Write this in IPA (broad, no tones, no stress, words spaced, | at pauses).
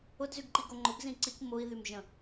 ʊdzyɡǃiɡo ŋ͡ǃʊɡzĩ ǀik mʊi̯ðym ʒə̃